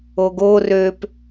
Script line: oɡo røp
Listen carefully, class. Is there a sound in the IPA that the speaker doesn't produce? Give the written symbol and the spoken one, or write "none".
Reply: none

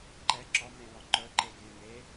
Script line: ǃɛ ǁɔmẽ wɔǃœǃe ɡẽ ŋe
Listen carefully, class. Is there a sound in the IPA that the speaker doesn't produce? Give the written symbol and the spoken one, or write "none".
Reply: none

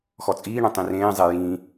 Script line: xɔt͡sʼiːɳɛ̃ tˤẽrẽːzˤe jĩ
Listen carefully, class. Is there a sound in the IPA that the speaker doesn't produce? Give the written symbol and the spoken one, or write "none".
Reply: ẽ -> ĩ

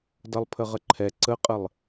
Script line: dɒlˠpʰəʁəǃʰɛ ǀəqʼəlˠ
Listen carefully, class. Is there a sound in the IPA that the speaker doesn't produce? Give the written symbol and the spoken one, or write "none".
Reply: ɒ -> ʌ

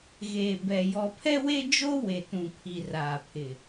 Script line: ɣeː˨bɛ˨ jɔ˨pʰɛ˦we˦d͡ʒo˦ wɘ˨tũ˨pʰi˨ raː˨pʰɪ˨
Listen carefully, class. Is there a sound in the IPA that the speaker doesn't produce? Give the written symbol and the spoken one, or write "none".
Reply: ɘ˨ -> e˨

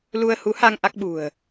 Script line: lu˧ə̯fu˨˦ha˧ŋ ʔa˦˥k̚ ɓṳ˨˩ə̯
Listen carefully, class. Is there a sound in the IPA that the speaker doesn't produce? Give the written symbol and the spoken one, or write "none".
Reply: f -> h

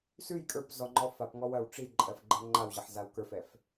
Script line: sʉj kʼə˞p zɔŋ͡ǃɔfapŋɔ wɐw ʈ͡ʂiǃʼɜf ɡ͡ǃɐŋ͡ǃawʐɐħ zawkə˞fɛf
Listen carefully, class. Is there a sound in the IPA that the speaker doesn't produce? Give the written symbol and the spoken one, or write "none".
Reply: ʐ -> ʑ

